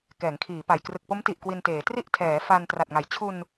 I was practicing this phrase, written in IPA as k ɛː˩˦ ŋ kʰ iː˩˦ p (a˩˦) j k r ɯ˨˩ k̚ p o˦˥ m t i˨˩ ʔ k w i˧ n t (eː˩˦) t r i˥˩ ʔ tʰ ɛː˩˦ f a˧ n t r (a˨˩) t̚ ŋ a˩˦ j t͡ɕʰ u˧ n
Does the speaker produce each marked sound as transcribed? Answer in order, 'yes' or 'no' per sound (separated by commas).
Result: no, yes, yes